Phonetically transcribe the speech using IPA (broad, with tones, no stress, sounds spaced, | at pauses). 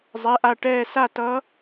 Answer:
zˤ ɛ˩˧˩ ʔ a˧˩ ʈ ɛː˧˩ s a˥˩ t ʌ˧˥